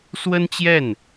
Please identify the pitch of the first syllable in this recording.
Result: high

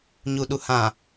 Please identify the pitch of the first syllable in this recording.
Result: low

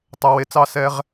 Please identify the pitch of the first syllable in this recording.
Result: low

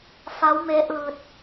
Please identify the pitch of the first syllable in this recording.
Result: rising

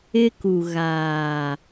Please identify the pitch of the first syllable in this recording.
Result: high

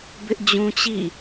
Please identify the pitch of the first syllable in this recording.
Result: high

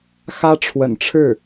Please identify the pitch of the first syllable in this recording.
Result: high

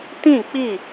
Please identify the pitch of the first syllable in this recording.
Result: falling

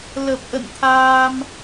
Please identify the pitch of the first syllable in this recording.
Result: low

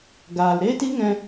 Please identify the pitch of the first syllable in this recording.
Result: low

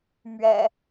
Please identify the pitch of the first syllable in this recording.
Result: low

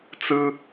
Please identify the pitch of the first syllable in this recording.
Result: high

